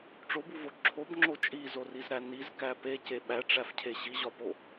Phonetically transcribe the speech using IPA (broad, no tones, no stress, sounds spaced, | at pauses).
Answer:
ʈ͡ʂ o b u v o ǁʰ o b ŋ͡ǁ o t͡ʃʼ i z o r i z ɾ æ n i z k æ p e c e ɓ æ ʈ͡ʂ æ f cʰ e ɕ i ʑ ɒ p o